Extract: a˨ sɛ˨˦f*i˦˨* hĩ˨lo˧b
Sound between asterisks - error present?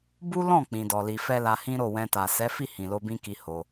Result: no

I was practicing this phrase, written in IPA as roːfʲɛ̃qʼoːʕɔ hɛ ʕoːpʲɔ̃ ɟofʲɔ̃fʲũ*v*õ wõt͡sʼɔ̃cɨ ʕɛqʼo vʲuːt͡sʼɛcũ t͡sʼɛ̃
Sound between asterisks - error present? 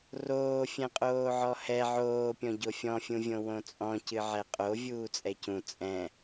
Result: yes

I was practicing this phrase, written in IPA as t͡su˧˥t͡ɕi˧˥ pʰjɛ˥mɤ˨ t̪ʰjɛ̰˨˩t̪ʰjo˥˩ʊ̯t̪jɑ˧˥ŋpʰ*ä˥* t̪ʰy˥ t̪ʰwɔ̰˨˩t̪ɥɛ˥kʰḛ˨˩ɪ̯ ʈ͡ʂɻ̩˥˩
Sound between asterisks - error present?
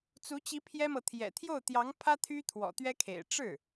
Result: no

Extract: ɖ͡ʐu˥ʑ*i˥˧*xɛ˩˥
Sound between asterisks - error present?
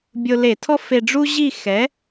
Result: no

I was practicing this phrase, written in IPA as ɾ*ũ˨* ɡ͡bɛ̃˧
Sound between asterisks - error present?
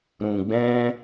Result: no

